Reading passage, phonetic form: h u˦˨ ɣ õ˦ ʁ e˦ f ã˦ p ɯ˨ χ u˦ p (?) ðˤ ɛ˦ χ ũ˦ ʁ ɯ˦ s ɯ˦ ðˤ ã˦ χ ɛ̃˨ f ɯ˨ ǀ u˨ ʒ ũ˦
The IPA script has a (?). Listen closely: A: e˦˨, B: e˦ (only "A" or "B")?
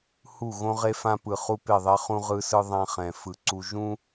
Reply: A